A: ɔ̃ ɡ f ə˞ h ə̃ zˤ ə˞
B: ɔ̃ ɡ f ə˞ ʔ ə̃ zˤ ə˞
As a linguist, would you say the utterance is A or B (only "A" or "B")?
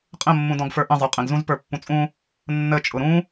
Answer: B